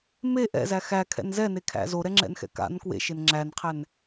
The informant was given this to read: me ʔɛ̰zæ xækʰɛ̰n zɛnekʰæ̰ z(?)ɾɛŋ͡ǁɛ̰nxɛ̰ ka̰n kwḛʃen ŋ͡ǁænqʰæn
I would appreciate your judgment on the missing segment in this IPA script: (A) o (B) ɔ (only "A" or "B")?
A